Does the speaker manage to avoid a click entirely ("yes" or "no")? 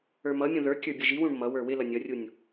yes